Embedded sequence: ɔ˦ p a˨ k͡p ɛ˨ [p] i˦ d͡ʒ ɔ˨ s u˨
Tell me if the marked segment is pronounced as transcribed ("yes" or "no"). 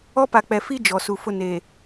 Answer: no